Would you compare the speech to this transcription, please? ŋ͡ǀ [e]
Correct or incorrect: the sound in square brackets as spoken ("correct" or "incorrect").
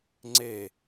correct